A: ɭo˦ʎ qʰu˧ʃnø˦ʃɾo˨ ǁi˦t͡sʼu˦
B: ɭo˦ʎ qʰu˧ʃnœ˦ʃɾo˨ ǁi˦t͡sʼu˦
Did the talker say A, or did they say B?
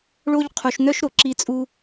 B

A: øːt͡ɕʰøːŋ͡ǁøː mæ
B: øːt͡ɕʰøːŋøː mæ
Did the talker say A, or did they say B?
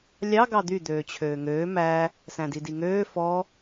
B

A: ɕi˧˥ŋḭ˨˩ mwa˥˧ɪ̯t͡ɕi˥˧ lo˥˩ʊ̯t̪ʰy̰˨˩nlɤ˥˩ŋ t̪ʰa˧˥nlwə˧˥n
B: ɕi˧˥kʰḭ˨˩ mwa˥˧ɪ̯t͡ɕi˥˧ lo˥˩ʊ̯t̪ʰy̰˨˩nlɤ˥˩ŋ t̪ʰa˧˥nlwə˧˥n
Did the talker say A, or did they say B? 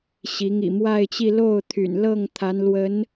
A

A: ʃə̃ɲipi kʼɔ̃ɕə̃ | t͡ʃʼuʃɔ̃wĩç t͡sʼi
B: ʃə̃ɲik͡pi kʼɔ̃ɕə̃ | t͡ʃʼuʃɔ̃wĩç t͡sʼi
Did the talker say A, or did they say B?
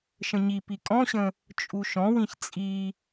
A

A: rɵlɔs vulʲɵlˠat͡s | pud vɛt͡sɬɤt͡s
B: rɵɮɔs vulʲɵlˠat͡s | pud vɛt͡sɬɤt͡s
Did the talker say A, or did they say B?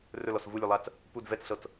A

